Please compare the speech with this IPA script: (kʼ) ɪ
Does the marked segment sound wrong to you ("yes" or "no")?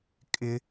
no